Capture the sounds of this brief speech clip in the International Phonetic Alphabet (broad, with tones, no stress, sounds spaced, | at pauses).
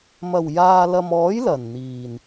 m ɐ˨˩ w j aː˨ l ɐ˨ m ɔː˨˥ j l ɐ˨˩ n n̪ iː˨˩ n